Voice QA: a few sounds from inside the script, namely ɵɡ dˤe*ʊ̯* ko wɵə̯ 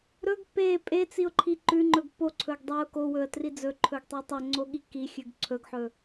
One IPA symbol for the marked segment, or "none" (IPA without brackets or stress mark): ʊ̯